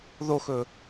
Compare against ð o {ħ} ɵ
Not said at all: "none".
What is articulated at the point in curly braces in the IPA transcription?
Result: x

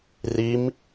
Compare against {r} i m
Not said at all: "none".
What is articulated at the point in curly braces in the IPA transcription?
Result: r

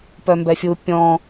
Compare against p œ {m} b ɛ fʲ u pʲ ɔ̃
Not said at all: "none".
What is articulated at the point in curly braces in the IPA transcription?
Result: m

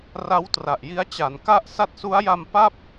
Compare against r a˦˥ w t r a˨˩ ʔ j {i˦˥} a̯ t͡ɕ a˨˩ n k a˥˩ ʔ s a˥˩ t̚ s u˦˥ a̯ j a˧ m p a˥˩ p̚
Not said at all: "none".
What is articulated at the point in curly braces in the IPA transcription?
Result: i˦˥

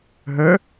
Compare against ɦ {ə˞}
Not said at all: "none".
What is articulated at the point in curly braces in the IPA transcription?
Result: ə˞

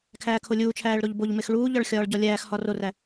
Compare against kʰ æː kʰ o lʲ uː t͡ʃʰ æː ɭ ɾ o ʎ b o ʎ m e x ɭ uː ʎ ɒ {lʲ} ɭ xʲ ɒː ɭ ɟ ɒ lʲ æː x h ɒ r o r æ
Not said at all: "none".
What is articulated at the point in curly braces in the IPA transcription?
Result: none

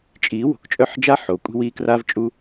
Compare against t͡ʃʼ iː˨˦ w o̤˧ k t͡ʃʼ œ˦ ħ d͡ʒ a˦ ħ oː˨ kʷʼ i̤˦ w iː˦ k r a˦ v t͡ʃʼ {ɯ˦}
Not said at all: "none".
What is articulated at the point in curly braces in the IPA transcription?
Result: u˦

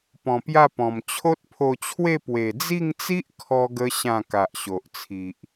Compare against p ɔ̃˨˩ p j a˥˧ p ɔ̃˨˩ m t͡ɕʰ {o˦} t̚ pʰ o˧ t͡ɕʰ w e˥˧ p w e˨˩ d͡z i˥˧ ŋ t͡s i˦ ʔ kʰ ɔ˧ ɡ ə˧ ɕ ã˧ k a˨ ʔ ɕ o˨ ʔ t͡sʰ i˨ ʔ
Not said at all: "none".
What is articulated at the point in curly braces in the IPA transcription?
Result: o˦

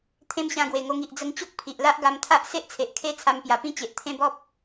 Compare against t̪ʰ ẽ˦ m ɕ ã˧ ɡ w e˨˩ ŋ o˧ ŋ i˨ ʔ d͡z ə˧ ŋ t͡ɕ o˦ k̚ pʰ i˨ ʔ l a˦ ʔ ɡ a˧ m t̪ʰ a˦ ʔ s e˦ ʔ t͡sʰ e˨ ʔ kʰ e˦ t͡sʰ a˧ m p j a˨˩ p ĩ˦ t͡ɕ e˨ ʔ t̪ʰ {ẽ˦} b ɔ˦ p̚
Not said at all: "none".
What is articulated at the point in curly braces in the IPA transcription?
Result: ẽ˦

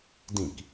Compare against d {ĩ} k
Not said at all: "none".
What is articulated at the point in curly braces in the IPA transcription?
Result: ĩ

